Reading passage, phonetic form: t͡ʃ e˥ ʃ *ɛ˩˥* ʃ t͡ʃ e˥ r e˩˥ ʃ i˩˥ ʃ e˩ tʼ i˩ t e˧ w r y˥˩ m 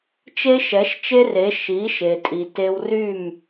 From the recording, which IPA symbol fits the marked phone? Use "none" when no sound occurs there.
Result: ɛ˩˥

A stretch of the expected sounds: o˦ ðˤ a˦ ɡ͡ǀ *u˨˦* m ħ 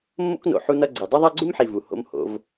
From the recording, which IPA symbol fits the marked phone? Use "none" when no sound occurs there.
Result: u˦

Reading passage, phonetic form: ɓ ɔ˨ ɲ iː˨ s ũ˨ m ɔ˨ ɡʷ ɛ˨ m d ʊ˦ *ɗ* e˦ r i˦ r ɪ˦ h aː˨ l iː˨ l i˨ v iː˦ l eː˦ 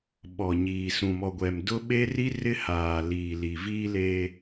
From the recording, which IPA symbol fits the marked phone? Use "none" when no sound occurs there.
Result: ɓ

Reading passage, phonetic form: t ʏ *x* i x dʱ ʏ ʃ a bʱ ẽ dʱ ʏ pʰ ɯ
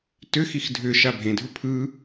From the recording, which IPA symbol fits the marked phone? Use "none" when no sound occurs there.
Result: x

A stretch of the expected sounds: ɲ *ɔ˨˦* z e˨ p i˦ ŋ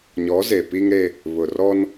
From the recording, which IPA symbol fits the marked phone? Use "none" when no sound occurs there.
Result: ɔ˨˦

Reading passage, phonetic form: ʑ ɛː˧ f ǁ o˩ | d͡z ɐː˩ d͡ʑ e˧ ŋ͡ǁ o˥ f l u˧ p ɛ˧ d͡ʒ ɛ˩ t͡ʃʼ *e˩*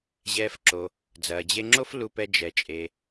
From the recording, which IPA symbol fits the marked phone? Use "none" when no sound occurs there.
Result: e˩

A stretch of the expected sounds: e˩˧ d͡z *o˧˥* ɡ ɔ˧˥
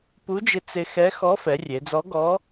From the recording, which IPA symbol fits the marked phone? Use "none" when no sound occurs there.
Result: ɔ˧˥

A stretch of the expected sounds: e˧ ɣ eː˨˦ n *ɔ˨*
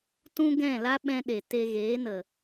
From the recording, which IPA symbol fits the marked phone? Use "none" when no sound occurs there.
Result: ə˨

